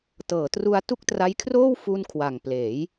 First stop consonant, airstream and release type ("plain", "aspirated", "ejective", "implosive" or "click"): plain